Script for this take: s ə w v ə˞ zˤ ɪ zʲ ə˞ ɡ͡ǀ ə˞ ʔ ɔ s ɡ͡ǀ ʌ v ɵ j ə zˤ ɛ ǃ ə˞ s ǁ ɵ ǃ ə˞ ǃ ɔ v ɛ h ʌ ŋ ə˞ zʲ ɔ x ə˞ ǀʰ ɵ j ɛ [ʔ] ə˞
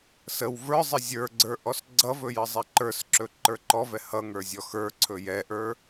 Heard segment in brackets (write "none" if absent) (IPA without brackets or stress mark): ʔ